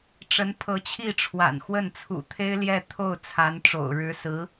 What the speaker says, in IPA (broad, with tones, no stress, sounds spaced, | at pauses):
ʈ͡ʂ ə˧˥ n pʰ ɤ˧˥ t͡ɕʰ i˥˩ ʈ͡ʂʰ w a̰˨˩ n x w ə˥˩ n t͡sʰ ṵ˨˩ t̪ʰ e˥ ɪ̯ l j ɛ˥˧ t̪ʰ o˥˩ ʊ̯ t͡sʰ a˧˥ n ʈ͡ʂ o̰˨˩ ʊ̯ ɻ ɻ̩˧˥ s ɹ̩˧˥